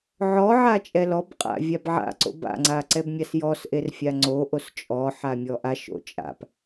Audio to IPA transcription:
ʕ ɔ ʕ a t͡ʃʼ ɛ l ɔ b qʼ a̰ vʲ a b ʕ a̰ ǀ o̰ b a̰ ŋ͡ǀ a ǀ ɛ b mʲ a s j ɔ s ʔ e r fʲ a ŋ͡ǀ o ʔ o s t͡ʃʼ ɔ ħ a mʲ ɔ ʔ a ʃ o̰ t͡ʃʼ a̰ p

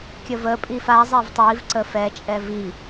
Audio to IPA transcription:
kʲ ə v ə pʼ i f a zˤ ɛ v tˤ i v ǀ ə f ɛ t͡ʃʼ ɛ v i

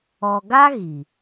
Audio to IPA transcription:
ɔ˨ ɡ a˦ ɣ i˨

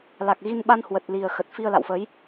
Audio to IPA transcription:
l a˨˩ k̚ ɣ i˧ n ɓ a˧ n h w ə˨˩ t̚ l i˨˩ ə̯ x ə˨˩ t̚ f i˧ ə̯ l a̰˧˨ w f ə˨˦ j

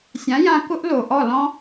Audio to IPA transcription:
sʲ ã˨˦ j ã˧ k ʊ˦ ʔ l o˨ ʔ ɔ˦˨ l ɔ̃˦

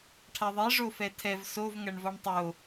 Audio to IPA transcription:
ʈʰ a ðˤ e ʐ o f ɛ tʰ ɛ v s o v ŋ ɐ ɳ v ɔ ɳ tˤ o

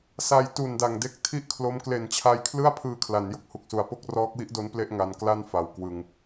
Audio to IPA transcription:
s a˨˩ j t u˨˩ n d a˨˩ ŋ d e˦˥ k̚ tʰ i˥˩ ʔ kʰ l o˦˥ m k l e˨˩ n t͡ɕʰ a˧ j kʰ l ɯ˥˩ a̯ pʰ ɯː˧ kʰ l a˩˦ n j o˦˥ k̚ h u˨˩ k̚ s u˨˩ a̯ p o˥˩ k̚ r ɔː˦˥ k̚ w i˦˥ ʔ d o˦˥ n p l e˥˩ ʔ ŋ a˧ n k l a˥˩ n f a˨˩ w k w ɯ˧ ŋ

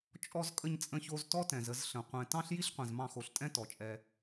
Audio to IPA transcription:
t͡ʃʼ ɔ˧ z kʼ ə˧ ɲ t͡sʼ ə̃˧ ç o˧ z t ɔ˦ t ɛ̃˨ z ə˧ z ɬ ə̃˨ qʷ ɛ̃˨ t ɑ̃˦ ɬ j i˦ ɬ qʷ ɛ̃˨ z m ɑ̃˧ x o˨ ɬ tʼ ɛ̃˦ t ɔ˨ t͡ʃʼ ɛ˧

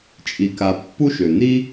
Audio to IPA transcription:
t͡ʃʼ i˨ k a˨ pː u˥ ʃ ø˩ n̪ i˥

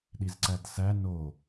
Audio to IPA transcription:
ɗ i z ǀ æ d s æ n o

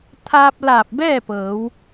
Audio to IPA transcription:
t̪ʰ aː˧ p̚ l aː˧˩ p̚ b ɛː˥˨ p ɤː˩˧ w

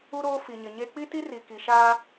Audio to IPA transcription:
u˦ ɾ oː˦ f i˨ ɲ ɪ˨ ɲ e˦ k͡p i˦ t i˦ r i˨ k i˨ ʃ aː˦

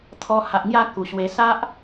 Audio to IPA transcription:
t̪ʰ ɔ˧ h a˨ ʔ ŋ j a˥˧ k u˨˩ ɕ w e˧ s a˦ ʔ

